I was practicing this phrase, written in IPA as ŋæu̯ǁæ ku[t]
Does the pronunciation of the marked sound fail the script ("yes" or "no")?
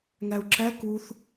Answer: yes